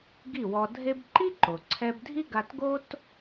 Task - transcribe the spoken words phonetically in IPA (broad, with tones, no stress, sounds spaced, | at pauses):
ɡ i˥˩ w ɔ˧ dʱ e˥ b ǃ i˥ ǃ o˩ ǀʰ ɛ˧ b dʱ i˥ ɡ a˧ t ɡ o˥ t